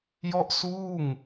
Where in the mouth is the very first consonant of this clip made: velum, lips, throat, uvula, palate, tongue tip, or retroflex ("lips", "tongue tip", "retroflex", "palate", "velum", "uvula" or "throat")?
palate